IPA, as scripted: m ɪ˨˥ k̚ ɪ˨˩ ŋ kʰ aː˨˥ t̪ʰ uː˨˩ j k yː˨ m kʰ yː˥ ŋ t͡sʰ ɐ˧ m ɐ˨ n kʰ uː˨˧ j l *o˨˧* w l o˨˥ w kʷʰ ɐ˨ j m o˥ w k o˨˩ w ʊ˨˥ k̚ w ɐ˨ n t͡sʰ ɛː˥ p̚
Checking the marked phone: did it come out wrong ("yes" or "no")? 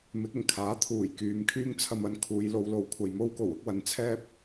no